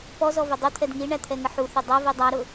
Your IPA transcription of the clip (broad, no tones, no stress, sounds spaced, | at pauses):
p ɔ z ɔ v ʊ dˤ u t̪ʰ ɛ d ŋ i ɳ æ t̪ʰ ɛ ŋ ə ħ u θ ɪ dˤ ʌ v i dˤ æ ɾ ʊ